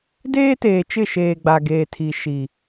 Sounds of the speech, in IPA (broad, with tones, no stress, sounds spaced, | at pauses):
d eː˦ t eː˨ t͡ʃ ɪ˦˨ ʃ eː˨ ɡ͡b a˨ ɡ eː˨ tʰ i˨ ʃ i˨